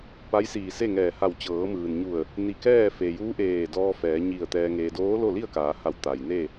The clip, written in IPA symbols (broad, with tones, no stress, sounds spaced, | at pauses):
p a˧˥ j s iː˧˩ s e˥˨ ŋ ɛː˧˩ h a˧˩ w t͡ɕ ɤː˩˧ m ɯː˩ n ɲ u˧˩ ə̯ | n i˧˩ k ɛː˥˨ f e˩ j uː˧˥ ʔ eː˧˩ d ɔː˧ f ɛː˩˧ ɲ i˧˩ ə̯ t̪ ɛː˧ ŋ eː˧ d oː˧˥ l o˥˨ l i˥˨ ə̯ k aː˩˧ h a˧˩ w t̪ a˩ j n e˥˨